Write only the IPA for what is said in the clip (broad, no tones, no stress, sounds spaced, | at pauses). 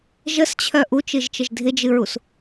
ʒ ə s t͡ɕʰ œ ʔ u t͡ʃ ɨ ʒ t͡ʃ ə ʒ dʱ ɪ d͡ʒ ɨ ɹ u s